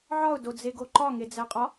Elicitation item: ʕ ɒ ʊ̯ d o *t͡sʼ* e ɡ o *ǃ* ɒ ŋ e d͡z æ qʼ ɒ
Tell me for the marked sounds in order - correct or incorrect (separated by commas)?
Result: incorrect, correct